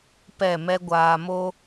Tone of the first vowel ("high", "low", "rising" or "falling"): falling